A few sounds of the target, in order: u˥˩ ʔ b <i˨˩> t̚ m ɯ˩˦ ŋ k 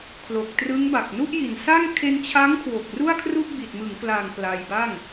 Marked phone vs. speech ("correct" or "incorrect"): correct